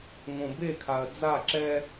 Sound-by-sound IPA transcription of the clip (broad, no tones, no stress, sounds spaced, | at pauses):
ŋ õ b e kʰ a ɐ̯ d͡z a ǁ ɛ